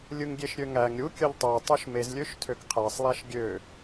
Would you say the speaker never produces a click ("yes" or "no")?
yes